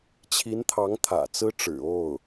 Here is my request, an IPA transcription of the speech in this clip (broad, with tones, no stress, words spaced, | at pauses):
t͡ɕʰi˧˥nt̪ʰɑ˧˥ŋ t̪ʰä̰˨˩t͡sɹ̩˥ʈ͡ʂɻ̩˨˩o˥˩ʊ̯